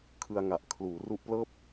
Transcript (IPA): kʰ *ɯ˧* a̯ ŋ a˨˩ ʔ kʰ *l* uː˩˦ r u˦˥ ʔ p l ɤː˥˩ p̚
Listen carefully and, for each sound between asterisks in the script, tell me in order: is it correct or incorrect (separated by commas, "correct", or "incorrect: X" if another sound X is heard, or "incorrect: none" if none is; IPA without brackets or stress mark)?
correct, correct